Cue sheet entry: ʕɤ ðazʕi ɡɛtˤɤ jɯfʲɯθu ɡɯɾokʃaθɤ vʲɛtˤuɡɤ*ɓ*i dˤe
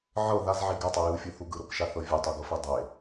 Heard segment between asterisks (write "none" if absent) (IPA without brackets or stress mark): f